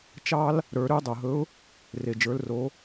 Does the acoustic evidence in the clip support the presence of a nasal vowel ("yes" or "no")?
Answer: no